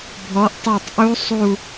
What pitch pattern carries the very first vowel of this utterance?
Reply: rising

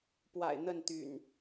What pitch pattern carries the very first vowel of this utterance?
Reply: low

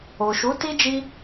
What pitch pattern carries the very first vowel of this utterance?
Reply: low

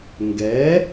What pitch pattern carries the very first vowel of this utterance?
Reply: rising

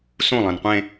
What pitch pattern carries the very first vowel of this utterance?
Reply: falling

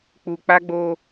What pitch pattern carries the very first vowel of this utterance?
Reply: low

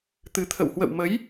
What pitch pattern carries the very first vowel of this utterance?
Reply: rising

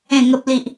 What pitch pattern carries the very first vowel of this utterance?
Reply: falling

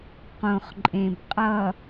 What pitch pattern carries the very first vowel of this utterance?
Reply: low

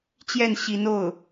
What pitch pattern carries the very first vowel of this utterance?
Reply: falling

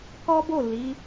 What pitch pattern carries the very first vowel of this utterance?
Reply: high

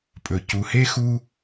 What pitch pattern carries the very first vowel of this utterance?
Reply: low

